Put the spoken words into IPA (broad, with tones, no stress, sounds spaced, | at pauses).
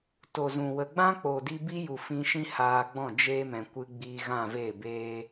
t o˨ z ũ˨ w ə˨ ɡ͡b ã˦ k͡p o˨ d i˧ b i˦ j u˨ f ĩ˧ ʃ ĩ˦ h aː˧ ɡ͡b ɔ̃˦˨ d͡ʒ eː˧ m ɛ̃˨ kʷ ɨ˧ ɡ͡b iː˧ ɣ ã˦˨ v eː˦˨ b eː˦